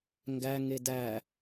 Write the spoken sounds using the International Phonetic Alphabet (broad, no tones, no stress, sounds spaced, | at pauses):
ŋ ɡ æ ŋ e d æ